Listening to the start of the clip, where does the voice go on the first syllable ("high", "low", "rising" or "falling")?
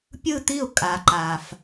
falling